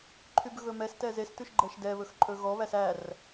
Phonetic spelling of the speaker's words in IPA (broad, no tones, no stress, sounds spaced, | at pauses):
ǃʰ y b ɣ ɵ m ɛ s t ɛ z e s t ʉ ʃ ɡ͡ǃ ɛ ʃ d ɛ β ɵ x ǃʼ ɵ ɣ ɔ β æ s æ r